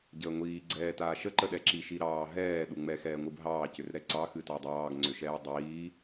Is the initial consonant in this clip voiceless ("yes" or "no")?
no